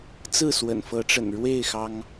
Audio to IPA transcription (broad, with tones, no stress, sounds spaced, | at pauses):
t͡s ɹ̩˥˨ s w ə̰˨˩ n f ɤ˨˦ ʈ͡ʂ ə̰˨˩ n ɻ w e˥˨ ɪ̯ x ɑ˦ ŋ